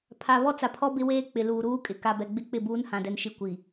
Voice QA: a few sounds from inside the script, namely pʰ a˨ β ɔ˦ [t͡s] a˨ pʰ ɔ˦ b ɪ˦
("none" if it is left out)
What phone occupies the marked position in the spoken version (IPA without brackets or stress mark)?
t͡s